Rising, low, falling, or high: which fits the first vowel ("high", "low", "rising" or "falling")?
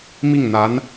falling